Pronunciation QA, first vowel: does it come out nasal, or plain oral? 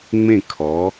nasal